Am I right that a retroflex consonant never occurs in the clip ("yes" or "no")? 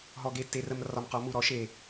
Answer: yes